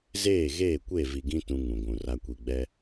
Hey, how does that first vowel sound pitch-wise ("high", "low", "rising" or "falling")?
falling